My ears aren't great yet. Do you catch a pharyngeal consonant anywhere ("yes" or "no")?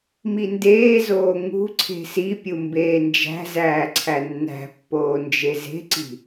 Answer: no